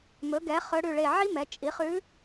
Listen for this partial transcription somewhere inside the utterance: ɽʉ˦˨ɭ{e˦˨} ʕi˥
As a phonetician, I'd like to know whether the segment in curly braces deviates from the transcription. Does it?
no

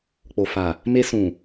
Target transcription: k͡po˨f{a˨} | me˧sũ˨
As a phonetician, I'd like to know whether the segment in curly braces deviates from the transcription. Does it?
no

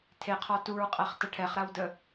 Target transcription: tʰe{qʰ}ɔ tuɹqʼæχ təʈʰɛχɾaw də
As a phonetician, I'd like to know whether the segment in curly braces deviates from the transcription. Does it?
no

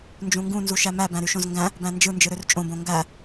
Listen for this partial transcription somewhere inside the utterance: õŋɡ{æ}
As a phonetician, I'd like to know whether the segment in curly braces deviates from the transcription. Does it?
no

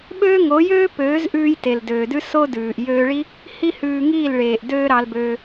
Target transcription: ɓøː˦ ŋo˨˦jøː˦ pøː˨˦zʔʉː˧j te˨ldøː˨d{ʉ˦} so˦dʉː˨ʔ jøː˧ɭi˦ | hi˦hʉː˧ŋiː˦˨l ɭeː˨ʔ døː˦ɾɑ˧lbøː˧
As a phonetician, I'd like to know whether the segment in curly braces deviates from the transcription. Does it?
no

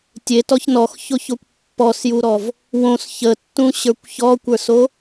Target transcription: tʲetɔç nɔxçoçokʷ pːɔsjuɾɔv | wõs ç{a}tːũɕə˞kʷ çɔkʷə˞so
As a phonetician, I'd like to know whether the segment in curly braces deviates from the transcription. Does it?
yes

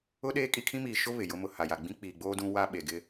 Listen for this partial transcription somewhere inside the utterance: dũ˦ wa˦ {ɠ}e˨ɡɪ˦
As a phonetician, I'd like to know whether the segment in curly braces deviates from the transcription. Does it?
yes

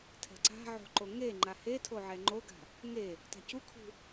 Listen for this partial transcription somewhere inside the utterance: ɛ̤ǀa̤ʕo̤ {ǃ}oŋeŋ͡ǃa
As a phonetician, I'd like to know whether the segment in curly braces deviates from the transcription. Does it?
no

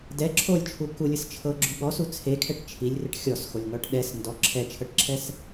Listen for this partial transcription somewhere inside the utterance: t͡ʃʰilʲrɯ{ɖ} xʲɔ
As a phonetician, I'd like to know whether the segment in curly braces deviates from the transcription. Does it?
yes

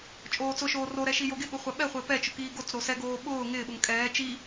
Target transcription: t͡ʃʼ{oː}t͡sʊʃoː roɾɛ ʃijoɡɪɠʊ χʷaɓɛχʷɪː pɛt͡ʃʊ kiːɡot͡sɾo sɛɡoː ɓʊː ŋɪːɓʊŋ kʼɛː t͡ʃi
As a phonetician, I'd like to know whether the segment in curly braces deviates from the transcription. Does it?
no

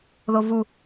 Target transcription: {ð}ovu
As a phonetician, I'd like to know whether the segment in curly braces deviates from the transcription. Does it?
no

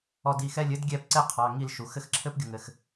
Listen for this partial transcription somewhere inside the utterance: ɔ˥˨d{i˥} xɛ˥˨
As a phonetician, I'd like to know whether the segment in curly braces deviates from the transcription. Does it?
yes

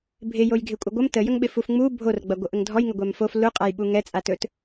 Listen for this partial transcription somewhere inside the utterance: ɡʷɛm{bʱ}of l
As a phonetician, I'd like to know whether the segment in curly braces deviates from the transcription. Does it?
yes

